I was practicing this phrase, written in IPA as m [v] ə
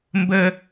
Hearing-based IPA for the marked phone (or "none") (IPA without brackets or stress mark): b